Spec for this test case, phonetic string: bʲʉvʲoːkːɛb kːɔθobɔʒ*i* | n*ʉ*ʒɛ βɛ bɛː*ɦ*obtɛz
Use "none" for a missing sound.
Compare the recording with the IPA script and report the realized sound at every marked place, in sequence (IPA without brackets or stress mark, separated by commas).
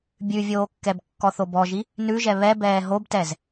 i, ʉ, ɦ